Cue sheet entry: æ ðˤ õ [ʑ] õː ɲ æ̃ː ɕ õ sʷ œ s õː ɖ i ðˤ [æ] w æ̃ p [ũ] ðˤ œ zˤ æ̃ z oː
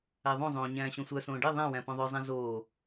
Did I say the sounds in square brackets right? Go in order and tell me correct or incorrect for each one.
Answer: incorrect: zˤ, incorrect: æ̃, incorrect: õ

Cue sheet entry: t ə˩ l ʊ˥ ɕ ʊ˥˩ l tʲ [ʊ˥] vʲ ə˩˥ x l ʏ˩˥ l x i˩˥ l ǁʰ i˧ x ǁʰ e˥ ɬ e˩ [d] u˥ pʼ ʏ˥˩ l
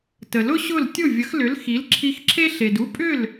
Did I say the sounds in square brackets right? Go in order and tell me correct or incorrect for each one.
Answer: incorrect: ʊ˥˩, correct

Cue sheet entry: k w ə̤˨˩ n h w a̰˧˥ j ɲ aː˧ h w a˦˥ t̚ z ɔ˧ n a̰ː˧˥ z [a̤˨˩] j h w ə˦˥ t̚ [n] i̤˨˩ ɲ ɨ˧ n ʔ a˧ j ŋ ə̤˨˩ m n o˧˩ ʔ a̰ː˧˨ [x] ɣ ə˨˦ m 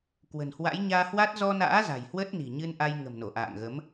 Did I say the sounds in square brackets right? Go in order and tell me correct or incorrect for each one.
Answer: correct, correct, incorrect: ŋ

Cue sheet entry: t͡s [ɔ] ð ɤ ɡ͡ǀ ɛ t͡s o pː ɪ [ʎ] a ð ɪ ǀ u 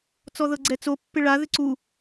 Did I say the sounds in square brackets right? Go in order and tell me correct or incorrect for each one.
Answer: correct, incorrect: ɭ

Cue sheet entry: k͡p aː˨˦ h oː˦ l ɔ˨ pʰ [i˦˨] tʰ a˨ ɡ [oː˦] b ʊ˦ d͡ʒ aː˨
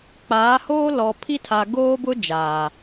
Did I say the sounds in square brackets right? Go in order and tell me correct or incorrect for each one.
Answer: incorrect: i˦, correct

